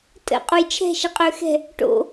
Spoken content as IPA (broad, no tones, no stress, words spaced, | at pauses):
tʼə̰ qʼujt͡ʃʰɛ̤ ʃɛqʼøxɛ̤ | ʈo̰